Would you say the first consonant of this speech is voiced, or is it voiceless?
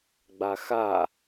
voiced